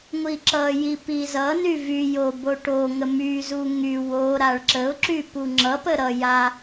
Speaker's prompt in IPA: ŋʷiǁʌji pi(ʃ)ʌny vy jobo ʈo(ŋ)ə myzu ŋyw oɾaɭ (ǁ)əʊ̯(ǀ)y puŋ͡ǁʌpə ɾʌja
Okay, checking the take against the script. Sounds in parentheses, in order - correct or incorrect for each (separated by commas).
incorrect, correct, correct, incorrect